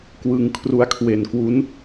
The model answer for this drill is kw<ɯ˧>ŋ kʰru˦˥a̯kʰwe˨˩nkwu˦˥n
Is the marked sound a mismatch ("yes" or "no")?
no